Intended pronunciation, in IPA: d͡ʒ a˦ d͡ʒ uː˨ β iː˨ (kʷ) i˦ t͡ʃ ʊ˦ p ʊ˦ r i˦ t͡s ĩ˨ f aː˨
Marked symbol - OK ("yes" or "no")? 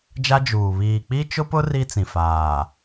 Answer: no